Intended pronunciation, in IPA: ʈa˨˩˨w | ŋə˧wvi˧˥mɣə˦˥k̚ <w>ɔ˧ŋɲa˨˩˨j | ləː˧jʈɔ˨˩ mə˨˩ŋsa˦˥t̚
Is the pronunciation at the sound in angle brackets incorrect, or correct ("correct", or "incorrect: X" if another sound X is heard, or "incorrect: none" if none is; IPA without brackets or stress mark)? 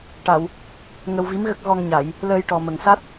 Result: incorrect: ɣ